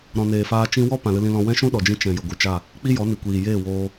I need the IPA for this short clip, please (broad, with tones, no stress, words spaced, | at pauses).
ɾɔ̃˨neː˨faː˧ t͡ʃĩ˧wɔ˦ pã˨lɨ˧lĩ˧lɔ̃˧ wɛ̃˦ʃũ˦ɗɔ˨d͡ʒĩ˧ t͡ʃɛ̃˨ jə˨ɡʷɨ˨t͡ʃa˦˨ | k͡pi˦jɔ˨˦ni˨ kʷiː˨jeː˦˨woː˧